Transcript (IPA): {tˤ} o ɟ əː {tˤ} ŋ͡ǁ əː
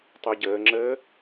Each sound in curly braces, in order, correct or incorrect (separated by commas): correct, incorrect